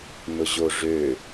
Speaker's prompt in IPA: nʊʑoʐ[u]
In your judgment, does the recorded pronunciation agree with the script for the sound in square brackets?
no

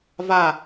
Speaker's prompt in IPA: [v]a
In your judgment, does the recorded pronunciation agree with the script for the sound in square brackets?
yes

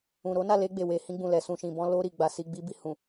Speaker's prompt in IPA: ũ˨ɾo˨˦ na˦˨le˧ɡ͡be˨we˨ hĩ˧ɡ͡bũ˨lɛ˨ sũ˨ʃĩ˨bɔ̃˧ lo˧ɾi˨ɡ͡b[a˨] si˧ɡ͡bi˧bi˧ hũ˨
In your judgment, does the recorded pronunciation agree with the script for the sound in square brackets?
yes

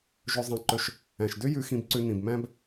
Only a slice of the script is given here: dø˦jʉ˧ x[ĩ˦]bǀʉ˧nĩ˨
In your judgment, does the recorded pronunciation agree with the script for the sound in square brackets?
no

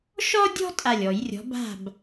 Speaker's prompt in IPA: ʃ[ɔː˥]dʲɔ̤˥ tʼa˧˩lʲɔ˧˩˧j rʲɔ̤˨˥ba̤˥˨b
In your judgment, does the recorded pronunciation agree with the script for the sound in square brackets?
no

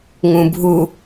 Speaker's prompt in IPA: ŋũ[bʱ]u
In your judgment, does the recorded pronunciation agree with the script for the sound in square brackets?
yes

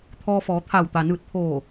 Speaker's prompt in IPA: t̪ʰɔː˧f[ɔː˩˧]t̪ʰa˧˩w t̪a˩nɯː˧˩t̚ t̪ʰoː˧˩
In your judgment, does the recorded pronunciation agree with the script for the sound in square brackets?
yes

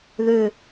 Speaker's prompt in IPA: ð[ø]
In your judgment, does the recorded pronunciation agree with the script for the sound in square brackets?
yes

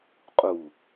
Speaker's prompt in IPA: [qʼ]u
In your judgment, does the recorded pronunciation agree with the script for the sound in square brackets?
yes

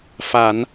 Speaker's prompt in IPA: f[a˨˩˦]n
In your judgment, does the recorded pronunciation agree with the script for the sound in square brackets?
yes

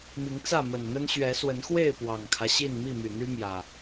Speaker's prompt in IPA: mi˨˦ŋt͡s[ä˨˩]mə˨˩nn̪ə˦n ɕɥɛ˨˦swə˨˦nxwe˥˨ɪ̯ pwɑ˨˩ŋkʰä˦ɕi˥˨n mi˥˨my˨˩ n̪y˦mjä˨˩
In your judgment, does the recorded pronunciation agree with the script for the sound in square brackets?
no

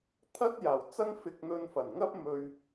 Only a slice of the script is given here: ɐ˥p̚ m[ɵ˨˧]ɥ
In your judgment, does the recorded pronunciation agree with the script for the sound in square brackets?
no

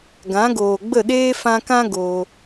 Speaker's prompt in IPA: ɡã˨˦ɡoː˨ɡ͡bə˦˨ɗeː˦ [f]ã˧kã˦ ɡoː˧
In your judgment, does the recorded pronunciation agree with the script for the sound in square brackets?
yes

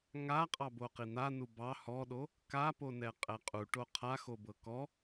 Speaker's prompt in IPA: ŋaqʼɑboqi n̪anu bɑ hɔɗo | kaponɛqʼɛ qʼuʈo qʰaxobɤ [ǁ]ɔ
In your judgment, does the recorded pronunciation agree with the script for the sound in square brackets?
no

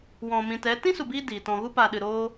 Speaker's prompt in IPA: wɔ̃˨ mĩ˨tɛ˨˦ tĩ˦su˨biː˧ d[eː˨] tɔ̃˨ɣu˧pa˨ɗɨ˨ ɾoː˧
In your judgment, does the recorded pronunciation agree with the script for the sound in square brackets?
no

